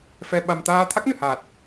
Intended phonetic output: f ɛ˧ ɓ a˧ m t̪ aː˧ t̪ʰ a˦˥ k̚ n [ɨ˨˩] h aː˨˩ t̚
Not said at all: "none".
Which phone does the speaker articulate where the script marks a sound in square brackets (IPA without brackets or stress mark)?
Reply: ɨ˨˩